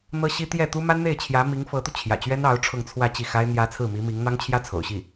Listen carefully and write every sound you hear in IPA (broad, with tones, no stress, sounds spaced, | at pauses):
n̪ ɤ˥ ɕ i˥ t̪ j ɛ˥˩ t̪ u˥ m a˥ n n̪ e˥˩ ɪ̯ t͡ɕʰ j ä˧˥ m i˧˥ ŋ f ɤ˧˥ t̪ u˧ t͡ɕʰ j ä̰˨˩ t͡ɕ ɥ ɛ˥ n ɑ˧˥ ʊ̯ ʈ͡ʂʰ ʊ˥˧ ŋ t͡sʰ w ä˥˧ t͡ɕ i˥˩ x a˥ ɪ̯ n̪ j ä˧˥ t͡sʰ ɹ̩˥˩ m i˧˥ m i˧˥ ŋ n̪ ɑ˥ ŋ t͡ɕʰ j ä˥ t͡sʰ o̰˨˩ ʊ̯ ɕ i˥˩